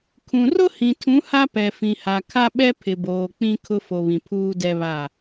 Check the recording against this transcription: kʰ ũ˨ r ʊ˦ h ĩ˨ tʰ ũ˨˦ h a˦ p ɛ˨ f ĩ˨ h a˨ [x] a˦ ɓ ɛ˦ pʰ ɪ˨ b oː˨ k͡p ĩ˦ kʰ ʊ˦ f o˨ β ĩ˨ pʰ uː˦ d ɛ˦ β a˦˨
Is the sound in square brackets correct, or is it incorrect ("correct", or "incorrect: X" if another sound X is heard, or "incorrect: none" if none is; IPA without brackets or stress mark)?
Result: incorrect: kʰ